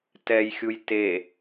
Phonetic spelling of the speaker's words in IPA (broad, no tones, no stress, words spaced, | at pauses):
tɛjxʲuj te